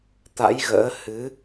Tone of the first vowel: rising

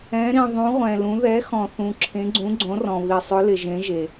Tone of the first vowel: rising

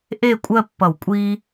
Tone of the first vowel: falling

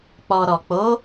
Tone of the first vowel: low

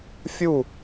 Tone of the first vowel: falling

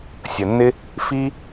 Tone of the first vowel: low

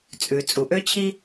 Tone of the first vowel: low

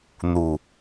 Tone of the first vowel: low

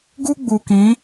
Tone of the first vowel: high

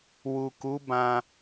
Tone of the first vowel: low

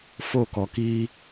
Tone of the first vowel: falling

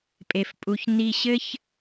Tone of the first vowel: high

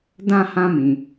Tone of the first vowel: high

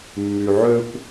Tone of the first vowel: low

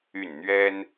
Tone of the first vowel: falling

